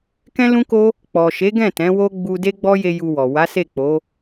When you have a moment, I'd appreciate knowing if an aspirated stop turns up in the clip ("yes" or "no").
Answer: no